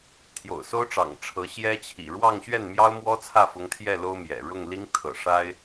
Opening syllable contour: low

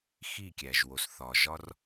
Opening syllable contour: falling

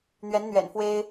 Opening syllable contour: rising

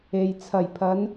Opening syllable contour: low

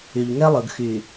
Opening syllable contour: low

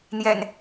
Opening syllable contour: low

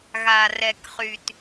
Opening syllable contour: low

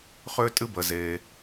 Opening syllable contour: high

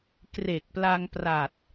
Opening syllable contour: low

